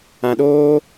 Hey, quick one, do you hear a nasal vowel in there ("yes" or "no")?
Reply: yes